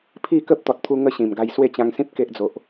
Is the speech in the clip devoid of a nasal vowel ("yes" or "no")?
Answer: no